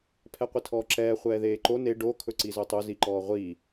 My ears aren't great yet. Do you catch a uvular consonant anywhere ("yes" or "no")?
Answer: yes